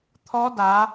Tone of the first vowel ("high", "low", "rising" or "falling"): rising